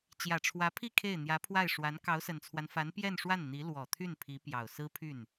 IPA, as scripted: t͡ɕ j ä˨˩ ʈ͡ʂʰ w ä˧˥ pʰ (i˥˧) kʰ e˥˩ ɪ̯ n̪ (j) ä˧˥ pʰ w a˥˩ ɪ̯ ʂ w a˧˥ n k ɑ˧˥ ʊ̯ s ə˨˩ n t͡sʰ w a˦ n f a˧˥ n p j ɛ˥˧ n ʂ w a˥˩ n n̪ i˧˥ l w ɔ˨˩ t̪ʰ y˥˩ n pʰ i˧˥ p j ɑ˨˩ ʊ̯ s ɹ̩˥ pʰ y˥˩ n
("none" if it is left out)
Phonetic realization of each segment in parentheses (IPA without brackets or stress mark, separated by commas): i˥˧, j